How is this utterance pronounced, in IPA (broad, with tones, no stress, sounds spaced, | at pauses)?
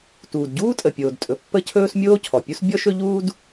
t uː˩ d ɟ uː˥ tʼ ə˩ pʲ oː˩ d tʼ ɵ˩ pː ə˥ cʰ ɵː˥ s mʲ oː˥ cʰ ɔ˩ pʲ u˥ s bʲ ɔ˥ ʃ ɵ˥ ʎ uː˥ d